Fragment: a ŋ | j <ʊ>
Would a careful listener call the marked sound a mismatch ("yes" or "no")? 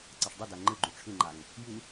yes